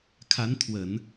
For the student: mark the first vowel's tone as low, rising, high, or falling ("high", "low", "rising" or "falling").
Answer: rising